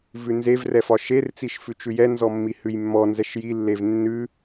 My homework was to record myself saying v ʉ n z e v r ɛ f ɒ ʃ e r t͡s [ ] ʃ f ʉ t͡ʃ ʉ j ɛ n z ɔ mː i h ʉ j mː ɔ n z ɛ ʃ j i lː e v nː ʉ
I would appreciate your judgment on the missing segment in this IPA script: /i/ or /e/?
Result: i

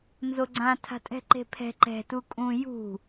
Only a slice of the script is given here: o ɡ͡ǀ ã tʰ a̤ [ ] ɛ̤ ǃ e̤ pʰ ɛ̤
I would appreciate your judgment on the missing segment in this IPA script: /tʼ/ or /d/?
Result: tʼ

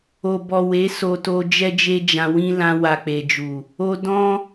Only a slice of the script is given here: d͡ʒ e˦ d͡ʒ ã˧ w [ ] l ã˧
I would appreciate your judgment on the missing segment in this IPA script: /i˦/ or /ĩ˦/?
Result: ĩ˦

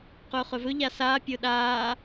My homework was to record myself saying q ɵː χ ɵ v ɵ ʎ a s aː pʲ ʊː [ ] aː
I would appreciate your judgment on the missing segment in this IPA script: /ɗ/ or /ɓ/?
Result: ɗ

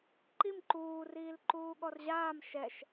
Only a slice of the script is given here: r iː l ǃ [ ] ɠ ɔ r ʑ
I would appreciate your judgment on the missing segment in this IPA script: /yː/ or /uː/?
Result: uː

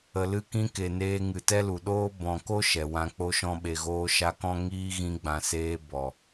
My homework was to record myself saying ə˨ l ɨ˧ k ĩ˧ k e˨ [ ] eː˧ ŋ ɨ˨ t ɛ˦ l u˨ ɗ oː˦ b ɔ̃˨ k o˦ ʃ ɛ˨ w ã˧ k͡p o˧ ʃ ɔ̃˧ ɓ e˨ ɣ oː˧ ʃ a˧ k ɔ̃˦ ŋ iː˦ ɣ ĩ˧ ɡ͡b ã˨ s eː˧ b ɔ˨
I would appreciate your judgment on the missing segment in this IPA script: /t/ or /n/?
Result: n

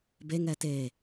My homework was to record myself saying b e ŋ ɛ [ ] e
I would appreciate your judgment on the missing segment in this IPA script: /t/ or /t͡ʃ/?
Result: t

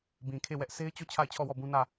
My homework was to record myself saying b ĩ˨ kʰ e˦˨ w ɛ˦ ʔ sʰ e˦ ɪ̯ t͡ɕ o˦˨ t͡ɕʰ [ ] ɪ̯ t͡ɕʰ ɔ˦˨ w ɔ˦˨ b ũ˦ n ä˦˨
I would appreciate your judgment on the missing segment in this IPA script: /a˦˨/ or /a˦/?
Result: a˦˨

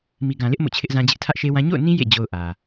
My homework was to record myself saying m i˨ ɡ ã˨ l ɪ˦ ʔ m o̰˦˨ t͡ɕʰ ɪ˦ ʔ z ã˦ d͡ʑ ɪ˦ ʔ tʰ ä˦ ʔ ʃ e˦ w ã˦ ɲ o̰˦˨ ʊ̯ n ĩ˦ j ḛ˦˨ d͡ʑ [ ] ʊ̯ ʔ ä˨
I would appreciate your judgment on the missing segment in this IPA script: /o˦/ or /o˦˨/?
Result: o˦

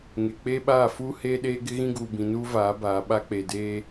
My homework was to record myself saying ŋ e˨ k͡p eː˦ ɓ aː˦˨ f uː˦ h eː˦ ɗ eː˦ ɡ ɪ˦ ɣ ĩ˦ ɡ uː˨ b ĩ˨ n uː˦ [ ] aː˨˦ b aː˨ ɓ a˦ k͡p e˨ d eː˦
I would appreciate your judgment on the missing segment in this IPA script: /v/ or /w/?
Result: v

